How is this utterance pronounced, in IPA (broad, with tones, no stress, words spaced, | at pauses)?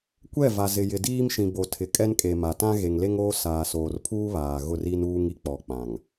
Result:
kʷɛ˦˨ va˨ zɪ˨jɪ˨diː˦mʃĩ˨ bo˨tʰɪ˨kʼɛ˦nkʼe˨ ma˨tã˦ ɣe˨ŋle˦ŋoː˦ saː˨ soː˨rpʰuː˦ βaː˨ ɣʊ˦˨ri˦nuː˦ŋ i˨k͡pɔ˨ k͡pã˨ŋ